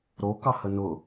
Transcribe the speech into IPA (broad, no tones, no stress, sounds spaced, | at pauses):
ɾ o k ɑ h ə n ʊ